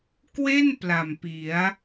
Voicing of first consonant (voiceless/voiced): voiceless